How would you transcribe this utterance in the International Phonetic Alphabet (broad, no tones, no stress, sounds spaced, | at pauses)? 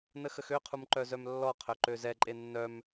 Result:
n ə x ə x ø qʰ u m ǃ œ z œ m lː ɔ qʰ œ ǃ ø z ɛ ǃʼ e nː œ m